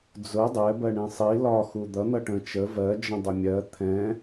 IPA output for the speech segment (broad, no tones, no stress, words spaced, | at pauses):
d͡zʊ dˤɛ bɜɳĩsˤi lɒ xud̪ʌ n̪ʌʈə̃ t͡ʃə vɜ d͡ʒə̃dˤʊmʲɜ t̪ʰɛ̃